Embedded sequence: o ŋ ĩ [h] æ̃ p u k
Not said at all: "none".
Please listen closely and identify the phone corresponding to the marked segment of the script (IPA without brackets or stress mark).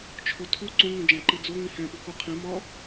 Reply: h